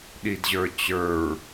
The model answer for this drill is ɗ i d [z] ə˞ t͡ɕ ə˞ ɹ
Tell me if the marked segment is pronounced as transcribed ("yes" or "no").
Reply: no